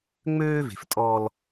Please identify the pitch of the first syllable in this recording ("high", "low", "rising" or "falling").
high